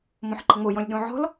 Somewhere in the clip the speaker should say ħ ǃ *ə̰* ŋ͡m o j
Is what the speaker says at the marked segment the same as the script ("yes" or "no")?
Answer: no